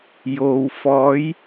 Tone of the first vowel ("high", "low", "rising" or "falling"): low